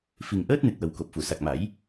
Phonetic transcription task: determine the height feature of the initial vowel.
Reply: high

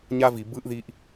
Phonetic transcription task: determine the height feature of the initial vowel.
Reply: low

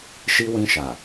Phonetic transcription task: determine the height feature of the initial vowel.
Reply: high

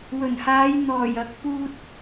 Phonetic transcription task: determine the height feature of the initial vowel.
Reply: mid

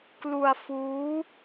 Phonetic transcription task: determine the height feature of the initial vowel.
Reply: high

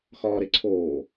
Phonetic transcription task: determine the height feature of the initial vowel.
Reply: low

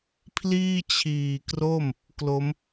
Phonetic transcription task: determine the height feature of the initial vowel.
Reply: high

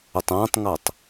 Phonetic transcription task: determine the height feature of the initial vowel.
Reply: high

